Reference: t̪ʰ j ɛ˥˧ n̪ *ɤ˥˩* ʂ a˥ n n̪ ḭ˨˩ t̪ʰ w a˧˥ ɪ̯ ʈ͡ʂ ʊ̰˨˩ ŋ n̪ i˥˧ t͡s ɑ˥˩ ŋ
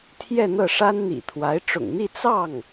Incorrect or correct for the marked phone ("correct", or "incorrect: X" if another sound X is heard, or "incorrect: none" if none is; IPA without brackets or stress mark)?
correct